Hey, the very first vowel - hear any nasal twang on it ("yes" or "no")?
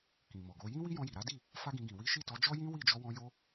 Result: yes